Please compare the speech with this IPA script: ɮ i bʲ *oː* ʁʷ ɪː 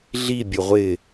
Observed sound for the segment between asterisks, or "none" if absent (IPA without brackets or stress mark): o